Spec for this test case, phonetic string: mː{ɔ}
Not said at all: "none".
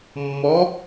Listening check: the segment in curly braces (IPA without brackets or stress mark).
ɔ